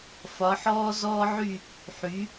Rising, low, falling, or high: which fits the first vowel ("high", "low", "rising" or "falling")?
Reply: rising